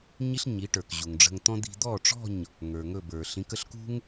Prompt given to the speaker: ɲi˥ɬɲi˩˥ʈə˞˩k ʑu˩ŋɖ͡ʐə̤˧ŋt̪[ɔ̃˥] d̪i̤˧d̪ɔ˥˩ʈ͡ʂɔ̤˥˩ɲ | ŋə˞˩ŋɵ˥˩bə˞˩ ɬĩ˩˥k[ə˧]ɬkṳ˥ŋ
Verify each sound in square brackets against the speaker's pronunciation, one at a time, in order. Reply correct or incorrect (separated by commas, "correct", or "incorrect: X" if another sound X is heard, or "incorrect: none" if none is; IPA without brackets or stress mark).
correct, correct